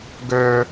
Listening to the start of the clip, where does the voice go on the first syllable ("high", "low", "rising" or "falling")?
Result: high